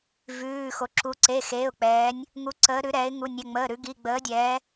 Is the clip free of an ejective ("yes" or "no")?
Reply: yes